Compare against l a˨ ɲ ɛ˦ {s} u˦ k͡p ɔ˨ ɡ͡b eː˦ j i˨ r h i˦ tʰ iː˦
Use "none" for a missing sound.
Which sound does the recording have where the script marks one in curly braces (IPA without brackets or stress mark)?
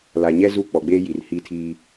z